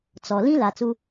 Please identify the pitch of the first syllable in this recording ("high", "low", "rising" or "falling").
low